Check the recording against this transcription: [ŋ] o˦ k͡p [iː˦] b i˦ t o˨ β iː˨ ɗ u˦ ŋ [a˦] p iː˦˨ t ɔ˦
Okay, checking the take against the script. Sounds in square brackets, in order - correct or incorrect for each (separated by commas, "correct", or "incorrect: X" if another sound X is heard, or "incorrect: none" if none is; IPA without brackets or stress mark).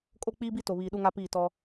incorrect: kʼ, correct, correct